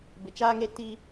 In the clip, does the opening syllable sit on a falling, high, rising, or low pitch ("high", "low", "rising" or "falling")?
low